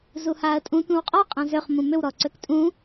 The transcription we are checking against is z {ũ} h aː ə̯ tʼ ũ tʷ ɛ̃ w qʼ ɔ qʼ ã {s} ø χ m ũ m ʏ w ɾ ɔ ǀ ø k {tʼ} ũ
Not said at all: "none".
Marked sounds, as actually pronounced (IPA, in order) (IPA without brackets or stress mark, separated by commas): u, z, tʼ